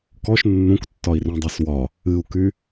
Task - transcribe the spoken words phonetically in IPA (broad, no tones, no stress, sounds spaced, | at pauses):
k ɔ ʃ nː ũ k tː ɒ i̯ r ũ dˤ ɜ s w ɒ | ɨ u̯ k y